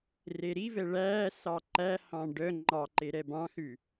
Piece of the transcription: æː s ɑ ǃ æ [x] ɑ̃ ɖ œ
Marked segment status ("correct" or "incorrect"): incorrect